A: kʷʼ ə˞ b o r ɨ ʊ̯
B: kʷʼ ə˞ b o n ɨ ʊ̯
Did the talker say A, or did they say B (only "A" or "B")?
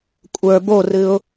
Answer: A